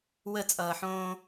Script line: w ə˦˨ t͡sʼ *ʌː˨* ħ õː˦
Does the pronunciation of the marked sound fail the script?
no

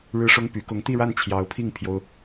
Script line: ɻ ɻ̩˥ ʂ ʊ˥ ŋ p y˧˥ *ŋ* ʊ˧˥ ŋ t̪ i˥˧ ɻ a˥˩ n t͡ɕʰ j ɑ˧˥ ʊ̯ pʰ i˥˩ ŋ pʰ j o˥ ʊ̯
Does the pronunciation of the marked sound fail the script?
yes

